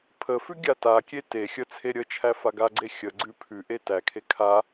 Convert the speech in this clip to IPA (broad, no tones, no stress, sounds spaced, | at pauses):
pʰ ə f ʉ ɡʲ a t a kʲ e t e xʲ ə t͡sʰ e ɾʲ ə t͡ʃʰ æ f a ɡ a ɡ͡ǀ e xʲ ə ɡ͡ǀ ʉ pʰ ʉ ʔ e t æ kʰ e kʰ a